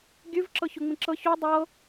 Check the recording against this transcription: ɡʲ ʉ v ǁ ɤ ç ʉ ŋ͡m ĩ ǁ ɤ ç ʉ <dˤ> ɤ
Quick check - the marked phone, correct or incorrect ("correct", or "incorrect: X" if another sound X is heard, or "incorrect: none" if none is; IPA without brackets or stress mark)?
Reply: correct